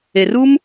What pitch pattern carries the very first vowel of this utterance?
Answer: low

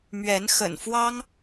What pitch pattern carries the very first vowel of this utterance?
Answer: rising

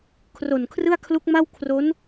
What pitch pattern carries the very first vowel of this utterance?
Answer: low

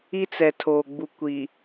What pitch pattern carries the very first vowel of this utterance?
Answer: high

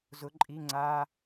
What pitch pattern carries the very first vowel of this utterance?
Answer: rising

